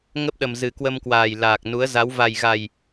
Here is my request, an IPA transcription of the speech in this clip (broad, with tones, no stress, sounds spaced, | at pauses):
ŋ ə˦˥ p̚ ɗ ə˨˩ m z ɨ˨˩ k w ə˧ m k w aː˨˩ j l aː˨˩ k̚ n u˨˦ ə̯ z a˨˦ w v a˨˩ j ɣ a˨˩ j